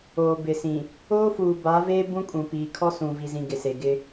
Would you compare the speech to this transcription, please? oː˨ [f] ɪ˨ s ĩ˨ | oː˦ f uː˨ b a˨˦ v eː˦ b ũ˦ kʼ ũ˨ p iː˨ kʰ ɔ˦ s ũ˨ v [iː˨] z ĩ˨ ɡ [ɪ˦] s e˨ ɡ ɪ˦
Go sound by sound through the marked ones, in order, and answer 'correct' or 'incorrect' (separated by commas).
incorrect, incorrect, incorrect